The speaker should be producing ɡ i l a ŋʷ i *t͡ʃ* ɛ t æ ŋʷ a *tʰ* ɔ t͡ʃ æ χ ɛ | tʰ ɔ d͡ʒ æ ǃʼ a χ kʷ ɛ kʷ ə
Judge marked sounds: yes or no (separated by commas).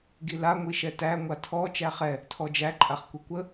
no, yes